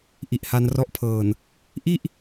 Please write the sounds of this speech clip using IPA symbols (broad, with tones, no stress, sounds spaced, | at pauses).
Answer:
ʔ i˨˩ ʔ h a˧ n r ɔ˦˥ ʔ pʰ ɤː˨˩ n | ʔ i˥˩ ʔ